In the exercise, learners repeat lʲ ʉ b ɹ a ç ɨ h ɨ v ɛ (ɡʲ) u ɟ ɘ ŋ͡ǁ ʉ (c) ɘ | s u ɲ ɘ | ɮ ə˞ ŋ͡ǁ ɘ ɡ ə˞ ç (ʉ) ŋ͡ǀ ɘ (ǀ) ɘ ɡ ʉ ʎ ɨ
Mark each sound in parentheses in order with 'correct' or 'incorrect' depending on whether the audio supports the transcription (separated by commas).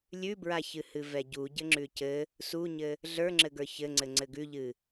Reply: incorrect, correct, incorrect, incorrect